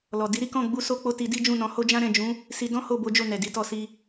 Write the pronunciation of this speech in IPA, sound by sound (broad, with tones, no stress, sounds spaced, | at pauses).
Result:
l ɔ˨ d i˨˦ ɾ i˦ k ɔ̃˦˨ ɡ͡b u˧ s o˧ k͡p o˧ t i˧ d i˦ d͡ʒ ũ˦˨ n ɔ̃˧ h o˦ d͡ʒ ã˦ ɾ ɛ̃˦˨ d͡ʒ ũ˨˦ | s i˧ d ɔ̃˦ h o˦˨ b o˨˦ d͡ʒ o˦˨ n ɛ˨ d i˨˦ t ɔ˧ s i˧